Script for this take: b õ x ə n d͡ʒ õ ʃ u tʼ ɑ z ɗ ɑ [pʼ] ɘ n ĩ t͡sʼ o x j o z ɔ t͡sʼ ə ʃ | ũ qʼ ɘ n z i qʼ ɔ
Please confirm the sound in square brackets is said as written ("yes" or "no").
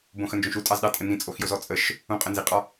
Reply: no